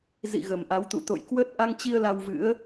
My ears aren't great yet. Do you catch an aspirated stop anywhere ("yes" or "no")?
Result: no